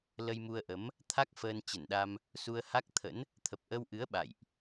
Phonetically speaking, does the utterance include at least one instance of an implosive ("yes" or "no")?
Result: yes